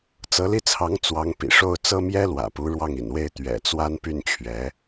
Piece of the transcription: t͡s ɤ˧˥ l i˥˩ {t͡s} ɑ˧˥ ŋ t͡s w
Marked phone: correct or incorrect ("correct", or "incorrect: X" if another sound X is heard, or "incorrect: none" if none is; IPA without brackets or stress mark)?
incorrect: t͡sʰ